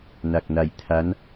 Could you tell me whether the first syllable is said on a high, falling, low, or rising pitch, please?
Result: low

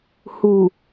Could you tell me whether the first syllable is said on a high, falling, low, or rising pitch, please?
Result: low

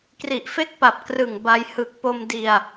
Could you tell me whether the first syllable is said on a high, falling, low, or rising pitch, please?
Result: low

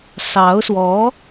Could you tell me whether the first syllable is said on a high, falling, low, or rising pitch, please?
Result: rising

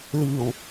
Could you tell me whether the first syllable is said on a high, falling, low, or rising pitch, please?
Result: low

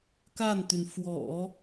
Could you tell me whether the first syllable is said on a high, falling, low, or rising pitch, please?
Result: falling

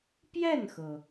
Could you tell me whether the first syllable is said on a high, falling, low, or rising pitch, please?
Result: falling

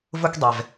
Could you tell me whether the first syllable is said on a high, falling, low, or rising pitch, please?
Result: high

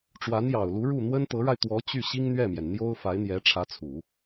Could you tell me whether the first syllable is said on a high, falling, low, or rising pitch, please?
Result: rising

